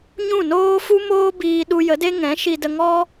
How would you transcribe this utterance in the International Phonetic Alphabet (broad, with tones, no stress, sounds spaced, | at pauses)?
ɲ ũ˦˨ n oː˦ f u˦ m oː˦ b iː˧ ɗ u˧ j ə˨˦ d e˦ ŋ ɛ̃˨˦ ʃ i˧ d ə˧ ŋ ɔ˦